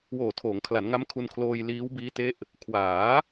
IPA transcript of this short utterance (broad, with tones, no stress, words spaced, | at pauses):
woː˨˩tʰoː˩˦ŋkʰla˩˦nŋa˦˥m kʰu˧nkʰloː˧j liː˦˥wbiː˦˥te˦˥ʔ | kʰwaː˩˦